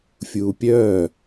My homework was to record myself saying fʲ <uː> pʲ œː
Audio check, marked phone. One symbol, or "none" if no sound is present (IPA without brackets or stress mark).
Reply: uː